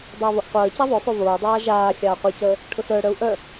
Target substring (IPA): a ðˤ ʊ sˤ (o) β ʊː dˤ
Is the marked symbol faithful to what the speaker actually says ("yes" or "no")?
yes